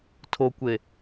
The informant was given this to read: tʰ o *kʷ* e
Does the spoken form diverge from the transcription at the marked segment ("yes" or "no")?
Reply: no